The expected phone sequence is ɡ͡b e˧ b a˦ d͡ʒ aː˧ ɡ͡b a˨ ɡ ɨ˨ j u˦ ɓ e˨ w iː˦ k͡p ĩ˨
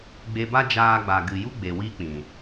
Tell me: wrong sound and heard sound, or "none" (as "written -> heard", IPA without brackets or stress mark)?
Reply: ɓ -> ɡ͡b